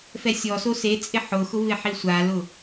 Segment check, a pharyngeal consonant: present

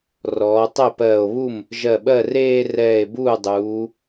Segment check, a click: absent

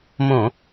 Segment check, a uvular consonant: absent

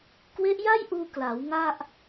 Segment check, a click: absent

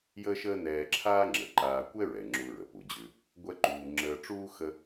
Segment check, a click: present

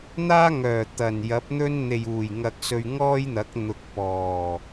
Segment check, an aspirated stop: absent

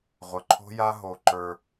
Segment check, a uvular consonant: present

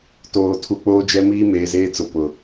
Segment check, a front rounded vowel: absent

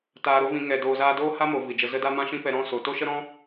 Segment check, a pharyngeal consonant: absent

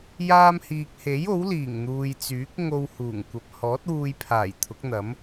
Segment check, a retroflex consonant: absent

